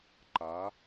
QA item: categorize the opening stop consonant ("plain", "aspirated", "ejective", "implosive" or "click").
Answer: click